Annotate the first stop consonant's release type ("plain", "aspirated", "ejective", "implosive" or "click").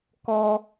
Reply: plain